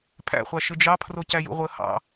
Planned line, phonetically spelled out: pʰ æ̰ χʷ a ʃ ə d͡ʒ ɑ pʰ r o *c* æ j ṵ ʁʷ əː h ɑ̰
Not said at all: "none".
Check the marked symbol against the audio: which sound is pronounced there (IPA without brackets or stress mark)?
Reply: c